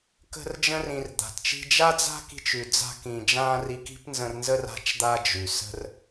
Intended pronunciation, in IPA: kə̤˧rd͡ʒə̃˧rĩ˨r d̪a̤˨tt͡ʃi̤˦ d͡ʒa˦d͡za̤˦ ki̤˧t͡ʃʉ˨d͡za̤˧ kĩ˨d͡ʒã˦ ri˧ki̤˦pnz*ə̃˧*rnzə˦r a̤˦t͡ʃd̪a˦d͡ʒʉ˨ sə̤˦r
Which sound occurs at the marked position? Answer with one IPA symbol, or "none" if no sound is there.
ə̃˧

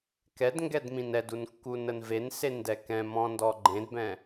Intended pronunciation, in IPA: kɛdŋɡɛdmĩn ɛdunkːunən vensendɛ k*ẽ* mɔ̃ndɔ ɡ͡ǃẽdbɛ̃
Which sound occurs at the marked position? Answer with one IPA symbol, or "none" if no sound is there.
ɛ̃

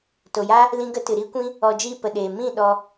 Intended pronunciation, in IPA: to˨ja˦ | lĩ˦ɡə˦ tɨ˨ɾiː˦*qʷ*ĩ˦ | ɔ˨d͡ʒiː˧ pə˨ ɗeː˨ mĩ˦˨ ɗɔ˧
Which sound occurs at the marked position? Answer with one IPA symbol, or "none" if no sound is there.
kʷ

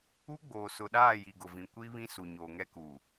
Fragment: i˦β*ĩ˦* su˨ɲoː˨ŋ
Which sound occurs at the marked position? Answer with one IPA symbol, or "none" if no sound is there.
ĩ˦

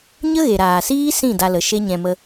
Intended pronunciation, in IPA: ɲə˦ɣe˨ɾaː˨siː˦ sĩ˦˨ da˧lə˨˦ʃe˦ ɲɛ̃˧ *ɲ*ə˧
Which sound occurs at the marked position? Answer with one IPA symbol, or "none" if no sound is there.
m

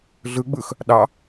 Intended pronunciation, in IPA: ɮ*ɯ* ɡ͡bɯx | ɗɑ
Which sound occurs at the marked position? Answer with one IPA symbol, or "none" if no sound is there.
ɯ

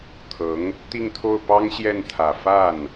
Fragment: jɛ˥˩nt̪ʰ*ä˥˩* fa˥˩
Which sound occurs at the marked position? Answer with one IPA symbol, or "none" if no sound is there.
ä˨˩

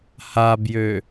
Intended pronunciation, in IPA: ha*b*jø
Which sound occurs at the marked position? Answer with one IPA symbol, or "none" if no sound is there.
b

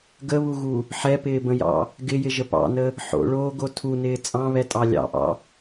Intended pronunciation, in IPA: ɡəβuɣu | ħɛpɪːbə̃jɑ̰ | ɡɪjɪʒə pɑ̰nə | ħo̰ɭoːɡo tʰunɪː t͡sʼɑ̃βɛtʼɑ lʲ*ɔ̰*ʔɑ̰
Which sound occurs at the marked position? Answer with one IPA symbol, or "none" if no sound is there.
ɑ̰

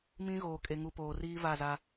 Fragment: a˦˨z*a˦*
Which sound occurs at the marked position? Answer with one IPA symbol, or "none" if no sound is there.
a˦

